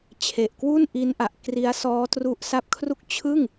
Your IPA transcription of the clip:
t͡ɕʰ e˨˩ ʔ k w u˥˩ n ʔ i˦˥ n ʔ a˨˩ ʔ k r i˦˥ a̯ s ɔː˦˥ t r u˦˥ ʔ s a˦˥ p̚ kʰ r u˥˩ k̚ t͡ɕʰ ɯ˥˩ ŋ

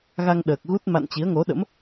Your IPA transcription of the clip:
ɣ a˧ ŋ ɗ əː˨˩ k̚ ɣ u˦˥ t̚ m a̰˧˨ n t͡ɕ i˨˦ ə̯ ŋ o˨˦ ɗ ə̰˧˥ m

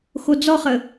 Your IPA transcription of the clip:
x o d͡z ɔ χ ə

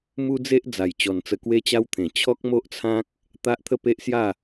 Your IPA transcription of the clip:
m u˦ d͡z e˦ ʔ d͡z a˨˩ j t͡ɕ ɔ˨˩ n t͡s ə˧ k w e˦ t͡ɕ a˦ w t̪ʰ ẽ˨˩ t͡ɕʰ ɔ˦ k̚ m o˦ ʔ t͡sʰ ã˦ k̚ | t̪ a˦ ʔ t̪ʰ ə˥˧ p e˦ ʔ s j a˥˧

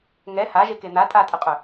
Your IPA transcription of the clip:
ŋ ɛ h a ʒ e k e n̪ a tʼ a tʼ ə qʼ œ

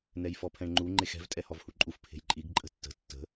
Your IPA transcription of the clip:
n ɛ j f ɔ pʰ ɛ̃ ɳ ŋ͡ǃ u ŋ͡ǃ e x ɛ̤ v tʼ ɛ h ɔ v h u ǃʼ u f pʰ e̤ j ǃʼ i ɡ ǃʼ ə̤ tː ə̤ tː ə̤

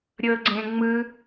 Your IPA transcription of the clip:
ɾʲ ɤ ɡ͡ǀ ẽ ŋ͡m ɯ

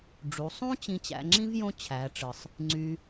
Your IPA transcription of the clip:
ɖ͡ʐ u˩˧ sˤ ũ˥ t͡ɕ ĩ˧ t͡ɕ æ̰˧ ŋ͡ǁ ĩ˥ v j õ˥ t͡ɕʰ æ˩˧ ʈ͡ʂ ɯ˩ sˤ | ŋ͡ǀ y˧

